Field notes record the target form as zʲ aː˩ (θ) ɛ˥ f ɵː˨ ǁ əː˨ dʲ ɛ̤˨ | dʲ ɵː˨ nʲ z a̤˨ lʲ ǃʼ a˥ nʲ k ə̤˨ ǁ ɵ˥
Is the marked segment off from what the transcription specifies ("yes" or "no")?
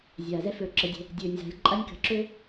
yes